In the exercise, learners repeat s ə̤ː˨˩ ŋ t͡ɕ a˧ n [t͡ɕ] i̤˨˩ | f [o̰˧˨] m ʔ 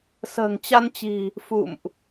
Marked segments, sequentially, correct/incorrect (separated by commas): correct, incorrect